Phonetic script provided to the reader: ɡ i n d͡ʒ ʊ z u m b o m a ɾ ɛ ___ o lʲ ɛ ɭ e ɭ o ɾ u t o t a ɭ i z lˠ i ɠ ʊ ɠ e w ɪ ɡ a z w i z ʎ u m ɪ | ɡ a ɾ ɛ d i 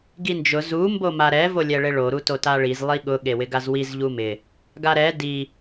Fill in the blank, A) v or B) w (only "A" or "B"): A